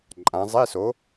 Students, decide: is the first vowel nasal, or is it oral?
nasal